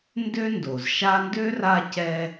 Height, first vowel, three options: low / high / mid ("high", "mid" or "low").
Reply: mid